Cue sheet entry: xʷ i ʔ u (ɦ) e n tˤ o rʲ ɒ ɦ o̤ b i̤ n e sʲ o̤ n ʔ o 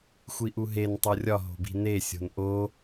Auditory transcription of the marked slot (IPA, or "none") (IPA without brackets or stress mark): ɦ